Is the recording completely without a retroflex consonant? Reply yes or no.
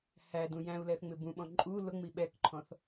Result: yes